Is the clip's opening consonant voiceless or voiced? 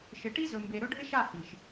voiceless